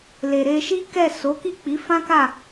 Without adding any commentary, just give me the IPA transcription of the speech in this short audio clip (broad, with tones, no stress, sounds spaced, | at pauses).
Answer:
l e˨ ɾ e˧ ʃ i˦ k ɛ˦˨ s o˨˦ k i˦˨ k͡p i˨˦ f ã˦ k a˦˨